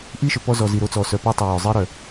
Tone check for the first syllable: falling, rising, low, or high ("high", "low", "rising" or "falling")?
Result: high